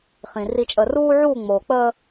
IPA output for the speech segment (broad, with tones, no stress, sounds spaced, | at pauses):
χ ĩ˨ r i˨ t͡ʃʼ əː˨ r uː˦ ʕ uː˦˨ ŋ͡m oː˨ k͡p əː˦